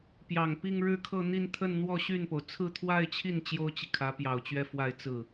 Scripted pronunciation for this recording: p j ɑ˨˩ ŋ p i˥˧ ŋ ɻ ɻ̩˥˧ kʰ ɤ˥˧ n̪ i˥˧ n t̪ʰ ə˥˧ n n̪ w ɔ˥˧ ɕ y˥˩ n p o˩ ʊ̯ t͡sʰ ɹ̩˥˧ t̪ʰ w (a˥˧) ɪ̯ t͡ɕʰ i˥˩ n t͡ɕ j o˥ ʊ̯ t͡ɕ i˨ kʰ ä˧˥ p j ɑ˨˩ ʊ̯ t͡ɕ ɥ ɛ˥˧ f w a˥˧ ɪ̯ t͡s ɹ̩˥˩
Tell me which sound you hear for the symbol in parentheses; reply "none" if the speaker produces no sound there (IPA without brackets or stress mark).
a˥˧